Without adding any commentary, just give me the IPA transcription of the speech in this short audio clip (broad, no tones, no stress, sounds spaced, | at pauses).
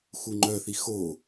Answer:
x u ŋ͡ǃ œ θ i x o